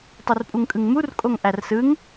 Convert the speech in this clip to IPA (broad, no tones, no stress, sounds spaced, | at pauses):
tˤ u r pʼ u ŋ kʼ ɯ ŋ m u r kʼ o ŋ ʔ æ r s ɯ ŋ